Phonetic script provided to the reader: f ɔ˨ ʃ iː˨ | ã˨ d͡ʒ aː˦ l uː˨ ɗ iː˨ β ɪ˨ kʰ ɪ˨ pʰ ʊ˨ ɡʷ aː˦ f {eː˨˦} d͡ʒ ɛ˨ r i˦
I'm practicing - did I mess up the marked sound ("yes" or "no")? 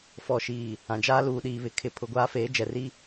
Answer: no